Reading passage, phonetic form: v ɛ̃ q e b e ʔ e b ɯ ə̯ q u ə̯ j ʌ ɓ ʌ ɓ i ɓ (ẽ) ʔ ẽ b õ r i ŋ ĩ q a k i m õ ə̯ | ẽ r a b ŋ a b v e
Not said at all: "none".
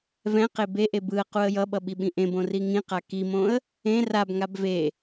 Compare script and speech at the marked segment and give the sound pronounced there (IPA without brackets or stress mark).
ĩ